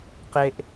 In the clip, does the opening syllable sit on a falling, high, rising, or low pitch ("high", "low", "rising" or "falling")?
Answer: high